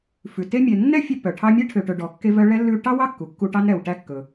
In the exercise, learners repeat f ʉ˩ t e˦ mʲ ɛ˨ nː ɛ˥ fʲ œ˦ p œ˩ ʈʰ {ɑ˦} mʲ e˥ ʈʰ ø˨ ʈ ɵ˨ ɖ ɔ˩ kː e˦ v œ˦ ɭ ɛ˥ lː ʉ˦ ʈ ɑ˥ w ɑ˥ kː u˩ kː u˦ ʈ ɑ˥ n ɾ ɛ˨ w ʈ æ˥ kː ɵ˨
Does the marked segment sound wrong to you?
no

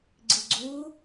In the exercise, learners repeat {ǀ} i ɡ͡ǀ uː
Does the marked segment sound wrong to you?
yes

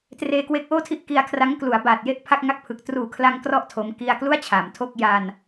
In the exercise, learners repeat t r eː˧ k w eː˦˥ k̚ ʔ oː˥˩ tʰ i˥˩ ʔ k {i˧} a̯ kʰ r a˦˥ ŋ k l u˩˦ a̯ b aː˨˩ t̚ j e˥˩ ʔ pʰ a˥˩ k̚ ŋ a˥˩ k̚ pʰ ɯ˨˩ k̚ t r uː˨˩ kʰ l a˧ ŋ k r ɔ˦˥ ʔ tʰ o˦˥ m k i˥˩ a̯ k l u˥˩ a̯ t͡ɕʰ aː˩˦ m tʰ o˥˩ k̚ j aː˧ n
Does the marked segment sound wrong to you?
no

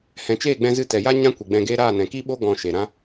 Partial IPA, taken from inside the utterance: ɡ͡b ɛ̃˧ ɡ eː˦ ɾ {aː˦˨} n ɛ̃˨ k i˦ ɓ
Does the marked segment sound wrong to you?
no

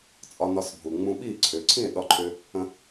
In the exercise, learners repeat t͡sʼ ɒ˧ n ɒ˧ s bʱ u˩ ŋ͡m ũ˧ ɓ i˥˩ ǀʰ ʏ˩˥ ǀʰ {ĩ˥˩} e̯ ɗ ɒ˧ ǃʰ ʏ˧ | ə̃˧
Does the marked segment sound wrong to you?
no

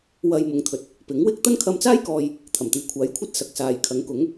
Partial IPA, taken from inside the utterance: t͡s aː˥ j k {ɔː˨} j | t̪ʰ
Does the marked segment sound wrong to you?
no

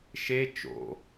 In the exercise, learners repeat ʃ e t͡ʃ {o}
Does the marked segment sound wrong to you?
yes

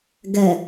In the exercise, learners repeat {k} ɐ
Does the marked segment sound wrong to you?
yes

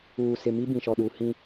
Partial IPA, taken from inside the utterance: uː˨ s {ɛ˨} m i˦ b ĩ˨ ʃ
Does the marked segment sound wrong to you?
yes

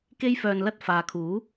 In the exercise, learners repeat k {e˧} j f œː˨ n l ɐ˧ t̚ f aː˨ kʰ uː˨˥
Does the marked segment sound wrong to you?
no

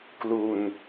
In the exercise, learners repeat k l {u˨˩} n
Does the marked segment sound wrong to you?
yes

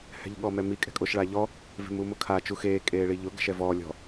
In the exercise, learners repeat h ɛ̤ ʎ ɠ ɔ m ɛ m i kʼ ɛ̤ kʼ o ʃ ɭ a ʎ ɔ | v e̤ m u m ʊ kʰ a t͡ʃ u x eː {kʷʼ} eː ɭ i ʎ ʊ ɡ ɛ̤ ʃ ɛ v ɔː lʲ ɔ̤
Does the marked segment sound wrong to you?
yes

